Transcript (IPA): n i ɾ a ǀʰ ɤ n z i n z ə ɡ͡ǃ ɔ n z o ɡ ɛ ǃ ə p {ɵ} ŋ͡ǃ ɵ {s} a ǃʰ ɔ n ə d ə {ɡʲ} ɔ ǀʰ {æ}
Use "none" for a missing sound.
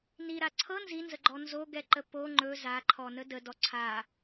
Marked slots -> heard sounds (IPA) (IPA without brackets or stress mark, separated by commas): o, z, d, a